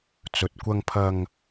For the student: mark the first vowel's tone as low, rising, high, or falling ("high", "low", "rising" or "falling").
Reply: low